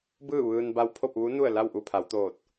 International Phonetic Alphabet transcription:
b ɯː˥˨ ʋ ɯː˧ n b a˧ w pʰ o˥˨ p̚ ʋ u˧˥ n u˥˨ ə̯ l a˥˨ w ʔ u˥˨ pʰ a˩˧ w t̪ oː˧˩ t̚

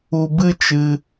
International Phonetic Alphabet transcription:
u˧ b ɨ˦ t͡ʃ ɨ˧

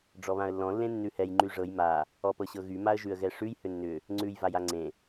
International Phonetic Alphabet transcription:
ɖ͡ʐ ɔ β ã ə̯ lː ɔ̃ lː ẽ nː ʉ h ɛ j ŋ͡ǃ y ʐ ɤ j m a | ɔ p ɤ ɕ ɤ ɣ y m a ə̯ ʒ ʉ ə̯ ɣ ɛ ʂ ʉ j h ʏ nː ʏ | ŋ͡ǀ ʉ j v a j a ŋ͡ǀ ẽ

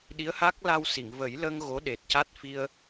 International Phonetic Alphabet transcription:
ɗ i˧˥ ə̯ h a˦˥ k̚ l a˧ w s i˨˩˨ ŋ v ə˨˩˦ j l ə˧ ŋ ɣ o˧˥ ɗ e˨˩ t̚ c a˦˥ t̚ f i˧ ə̯

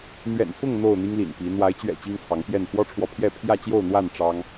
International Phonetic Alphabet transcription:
n̪ ɥ ɛ̰˨˩ n f ʊ˥˨ ŋ n̪ o˥˨ ʊ̯ n̪ i˦ ŋ l ḭ˨˩ n p i˨˦ n̪ w a˨˦ ɪ̯ t͡ɕ ɥ ɛ̰˨˩ t͡ɕ i˦ ŋ t͡sʰ ɑ˨˦ ŋ p j ɛ˥˨ n f w ɔ˦ ʈ͡ʂʰ w ɔ˨ pʰ j ɛ˥˨ pʰ j ä˥˨ t͡ɕ j o˥˨ ʊ̯ n̪ w a˥˨ n ʈ͡ʂ ɑ˦ ŋ

